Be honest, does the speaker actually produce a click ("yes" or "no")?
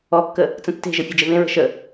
no